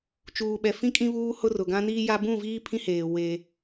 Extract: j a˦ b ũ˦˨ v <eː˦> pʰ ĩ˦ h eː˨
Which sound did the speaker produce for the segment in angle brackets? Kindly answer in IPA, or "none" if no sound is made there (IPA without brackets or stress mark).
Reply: iː˦